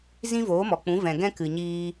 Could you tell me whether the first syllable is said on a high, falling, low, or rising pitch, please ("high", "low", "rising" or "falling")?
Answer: high